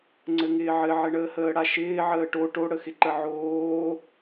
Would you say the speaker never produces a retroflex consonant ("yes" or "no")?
no